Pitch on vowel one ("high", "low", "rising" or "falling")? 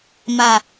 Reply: falling